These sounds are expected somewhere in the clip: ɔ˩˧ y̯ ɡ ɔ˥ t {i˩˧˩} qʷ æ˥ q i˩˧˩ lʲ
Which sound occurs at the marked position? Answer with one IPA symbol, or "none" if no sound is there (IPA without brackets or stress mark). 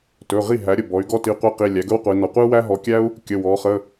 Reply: i˩˧˩